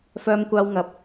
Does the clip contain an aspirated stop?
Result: no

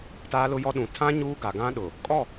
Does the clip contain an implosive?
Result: yes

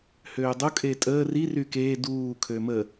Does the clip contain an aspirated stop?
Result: yes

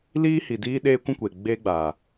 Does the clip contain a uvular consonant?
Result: no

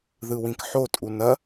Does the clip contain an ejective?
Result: yes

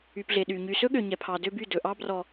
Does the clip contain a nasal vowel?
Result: no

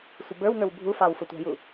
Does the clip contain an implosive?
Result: no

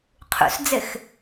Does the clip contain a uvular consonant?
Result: yes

